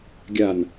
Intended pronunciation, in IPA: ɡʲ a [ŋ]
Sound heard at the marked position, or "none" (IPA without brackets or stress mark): n